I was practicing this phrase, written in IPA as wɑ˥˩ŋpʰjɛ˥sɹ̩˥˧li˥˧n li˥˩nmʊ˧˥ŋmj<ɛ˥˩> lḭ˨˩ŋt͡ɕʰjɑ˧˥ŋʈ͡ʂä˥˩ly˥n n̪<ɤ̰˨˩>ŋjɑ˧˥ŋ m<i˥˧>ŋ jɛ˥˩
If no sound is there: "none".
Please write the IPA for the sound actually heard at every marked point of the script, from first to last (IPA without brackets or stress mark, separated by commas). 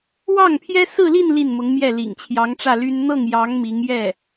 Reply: ɛ˥˩, ɤ˥˩, i˧˥